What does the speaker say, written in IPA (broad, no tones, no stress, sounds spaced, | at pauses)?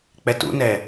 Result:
k͡p ɛ t ṵ n ɛ